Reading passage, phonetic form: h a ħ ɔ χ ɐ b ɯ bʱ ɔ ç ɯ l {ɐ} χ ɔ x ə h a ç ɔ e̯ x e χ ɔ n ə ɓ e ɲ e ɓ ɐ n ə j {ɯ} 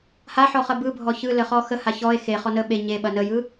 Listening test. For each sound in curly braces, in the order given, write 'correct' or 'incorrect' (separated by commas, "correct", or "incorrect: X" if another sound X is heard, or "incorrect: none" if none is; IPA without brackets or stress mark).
incorrect: ə, correct